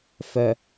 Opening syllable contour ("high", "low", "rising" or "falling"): low